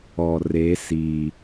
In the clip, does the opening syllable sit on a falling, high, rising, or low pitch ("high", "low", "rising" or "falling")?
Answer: low